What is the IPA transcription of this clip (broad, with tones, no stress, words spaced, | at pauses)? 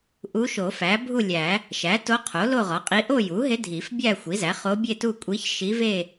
ʔu˧˥ʃo˨˩˦fæ˩˥ bʱu˥˧lʲæ˨˩˦ | ʃæ˩˥to˧˥qʰo˩˥ lo˥˧ʁɒ˩˥qʼi˧˥ ʔo˥˧ju˩˥ɦe˧˥ dʱi˨˩˦fbʲæ˥˧xʷi˩˥zæ˩˥ χo˧˥bʲe˥˧tu˥˧ kʷʼi˧˥ç ʃi˧˥ve˥˧